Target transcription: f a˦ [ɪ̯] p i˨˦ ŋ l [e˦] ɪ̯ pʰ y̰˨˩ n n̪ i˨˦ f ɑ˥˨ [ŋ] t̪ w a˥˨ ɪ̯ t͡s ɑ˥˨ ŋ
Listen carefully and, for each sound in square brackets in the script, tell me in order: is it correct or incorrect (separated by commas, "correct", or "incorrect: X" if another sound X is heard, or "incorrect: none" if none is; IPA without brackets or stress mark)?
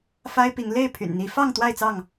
correct, incorrect: e˥˨, correct